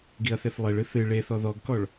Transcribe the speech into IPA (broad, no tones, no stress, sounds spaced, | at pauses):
ɡ i ɐ̯ θ e θ lˠ e ɭ ɨ θ ɨ ɭ e θ ɔ ð ɔ ɡ k ɔ ɭ